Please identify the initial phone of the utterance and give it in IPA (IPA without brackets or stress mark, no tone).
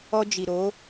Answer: ɔ